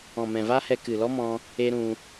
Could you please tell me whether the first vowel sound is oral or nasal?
nasal